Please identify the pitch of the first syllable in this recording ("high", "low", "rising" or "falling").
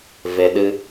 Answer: low